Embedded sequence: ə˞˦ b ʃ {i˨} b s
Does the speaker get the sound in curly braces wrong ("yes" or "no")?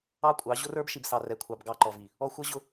no